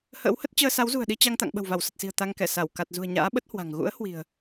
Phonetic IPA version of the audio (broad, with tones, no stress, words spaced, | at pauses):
hə̰ː˧˥whə˦˥t̚ t͡ɕəː˧ sa˨˦wzṳ˨˩ə̯ɗi˧ t͡ɕa˧ŋt̪a̰˧˨ŋ ɓə̤˨˩wva˧˩wsə˨˩t̚si̤˨˩ə̯ t̪a˧ŋkɛ˧˩ sa˧˩w ka˨˩t̚zṳ˨˩ə̯ɲa̰ː˧˥ɓə˦˥t̚ hwa̤˨˩ŋ ɣṵ˧˥ə̯ hwi̤˨˩ə̯